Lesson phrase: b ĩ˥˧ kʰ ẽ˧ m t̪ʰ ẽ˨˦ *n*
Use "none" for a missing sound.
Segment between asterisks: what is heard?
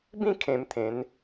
n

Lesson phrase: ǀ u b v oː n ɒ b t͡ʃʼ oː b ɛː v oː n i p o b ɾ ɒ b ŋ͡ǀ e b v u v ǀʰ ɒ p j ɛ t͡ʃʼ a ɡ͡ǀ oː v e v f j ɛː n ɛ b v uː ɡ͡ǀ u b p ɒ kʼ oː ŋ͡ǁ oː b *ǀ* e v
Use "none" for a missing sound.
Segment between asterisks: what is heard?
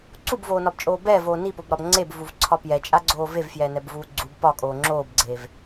ɡ͡ǀ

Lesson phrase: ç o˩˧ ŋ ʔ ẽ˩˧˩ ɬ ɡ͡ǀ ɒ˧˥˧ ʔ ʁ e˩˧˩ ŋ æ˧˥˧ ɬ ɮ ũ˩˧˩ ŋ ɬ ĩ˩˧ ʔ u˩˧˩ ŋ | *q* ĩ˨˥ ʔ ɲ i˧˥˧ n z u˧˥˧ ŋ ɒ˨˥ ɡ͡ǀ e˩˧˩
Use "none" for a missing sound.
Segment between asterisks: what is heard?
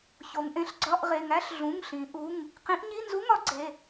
q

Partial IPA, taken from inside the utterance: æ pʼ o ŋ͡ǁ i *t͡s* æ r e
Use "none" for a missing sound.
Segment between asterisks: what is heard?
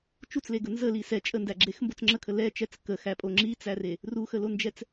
t͡s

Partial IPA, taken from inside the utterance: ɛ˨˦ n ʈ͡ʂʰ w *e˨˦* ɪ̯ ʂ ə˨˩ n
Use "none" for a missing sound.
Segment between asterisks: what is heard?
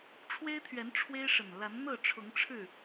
e˦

